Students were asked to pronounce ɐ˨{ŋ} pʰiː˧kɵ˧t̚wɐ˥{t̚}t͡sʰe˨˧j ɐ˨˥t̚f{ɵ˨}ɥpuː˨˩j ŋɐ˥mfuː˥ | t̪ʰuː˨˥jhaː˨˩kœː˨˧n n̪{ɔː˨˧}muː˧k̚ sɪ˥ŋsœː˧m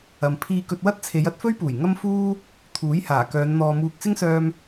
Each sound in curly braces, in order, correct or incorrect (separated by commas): incorrect, correct, incorrect, incorrect